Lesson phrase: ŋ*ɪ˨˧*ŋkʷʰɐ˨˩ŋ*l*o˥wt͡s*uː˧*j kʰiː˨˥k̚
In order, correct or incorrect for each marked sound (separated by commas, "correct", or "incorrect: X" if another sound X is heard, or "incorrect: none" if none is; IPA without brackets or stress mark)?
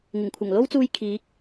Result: incorrect: ɪ˨˩, correct, correct